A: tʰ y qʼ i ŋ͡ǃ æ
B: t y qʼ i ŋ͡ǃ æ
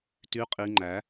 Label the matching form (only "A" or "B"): B